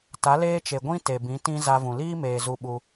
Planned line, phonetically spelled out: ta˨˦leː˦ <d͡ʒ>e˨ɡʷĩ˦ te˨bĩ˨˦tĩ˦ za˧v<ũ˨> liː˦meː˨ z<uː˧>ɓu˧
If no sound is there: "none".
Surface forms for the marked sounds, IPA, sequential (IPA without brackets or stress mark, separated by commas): t͡ʃ, ũ˨, u˧